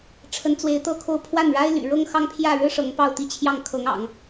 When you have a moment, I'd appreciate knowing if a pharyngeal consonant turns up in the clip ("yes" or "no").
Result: no